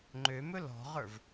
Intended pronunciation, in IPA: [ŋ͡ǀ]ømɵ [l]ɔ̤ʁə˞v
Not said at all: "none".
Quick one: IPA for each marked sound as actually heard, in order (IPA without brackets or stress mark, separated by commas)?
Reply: ŋ͡ǃ, l